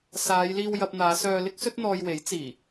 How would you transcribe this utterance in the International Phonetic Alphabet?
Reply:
s aː˨˧ j l iː˧ w j ɐ˧ p̚ n̪ aː˨˧ s œː˧ l ɪ˥ k̚ s ɵ˥ t̚ n̪ ɔː˧ j w e˨˥ j t͡s iː˨˩

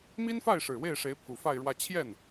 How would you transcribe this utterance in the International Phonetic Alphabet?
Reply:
m i˥ n f a˥˩ ɪ̯ ʂ ɻ̩˨˩ w e˥˩ ɪ̯ ʂ e˧˥ ɪ̯ pʰ u˨˩ f a˥˧ ɪ̯ ɻ w ä˥˧ t͡ɕʰ j ɛ˥˩ n

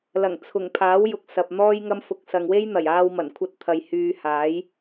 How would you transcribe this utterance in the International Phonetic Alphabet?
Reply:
l ɐ˨˩ ŋ t͡sʰ ʊ˨˩ ŋ pʰ aː˨˥ w j ʊ˨ k̚ s ɐ˨ p̚ n̪ ɔː˥ j ŋ ɐ˥ m f ʊ˧ k̚ s ɐ˨ ŋ w e˥ j n̪ ɐ˨˩ j aː˧ w m ɐ˨˩ n kʷʰ ɐ˧ t̚ t̪ʰ ɐ˨ j h yː˧ h aː˨˥ j

